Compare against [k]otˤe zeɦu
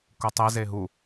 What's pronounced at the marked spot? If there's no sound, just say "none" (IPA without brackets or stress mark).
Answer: k